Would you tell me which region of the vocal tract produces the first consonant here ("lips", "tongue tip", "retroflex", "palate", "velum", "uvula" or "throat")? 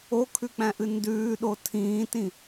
velum